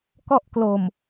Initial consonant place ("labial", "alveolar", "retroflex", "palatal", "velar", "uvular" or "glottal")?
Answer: velar